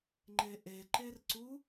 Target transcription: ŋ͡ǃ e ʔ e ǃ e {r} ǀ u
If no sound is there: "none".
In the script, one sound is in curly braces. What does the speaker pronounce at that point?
r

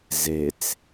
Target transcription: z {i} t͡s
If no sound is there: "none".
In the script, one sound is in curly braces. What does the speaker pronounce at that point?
e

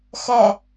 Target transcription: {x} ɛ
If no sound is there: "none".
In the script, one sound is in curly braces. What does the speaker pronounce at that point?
x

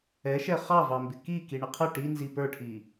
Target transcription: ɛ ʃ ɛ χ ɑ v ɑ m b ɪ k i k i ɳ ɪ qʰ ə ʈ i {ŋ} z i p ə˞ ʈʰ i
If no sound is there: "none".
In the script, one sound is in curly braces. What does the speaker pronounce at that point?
n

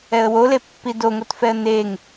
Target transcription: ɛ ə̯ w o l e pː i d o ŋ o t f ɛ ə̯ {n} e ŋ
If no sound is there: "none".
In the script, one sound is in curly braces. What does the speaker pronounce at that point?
n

